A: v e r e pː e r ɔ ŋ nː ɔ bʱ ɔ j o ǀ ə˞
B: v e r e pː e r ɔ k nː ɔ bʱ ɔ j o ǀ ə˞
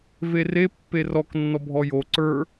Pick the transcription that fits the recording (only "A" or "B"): B